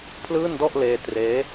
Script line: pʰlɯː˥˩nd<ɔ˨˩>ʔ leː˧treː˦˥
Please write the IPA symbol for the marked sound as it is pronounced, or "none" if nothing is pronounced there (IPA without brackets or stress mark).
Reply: ɔ˥˩